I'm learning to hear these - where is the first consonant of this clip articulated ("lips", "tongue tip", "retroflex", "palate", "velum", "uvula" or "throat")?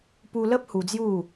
lips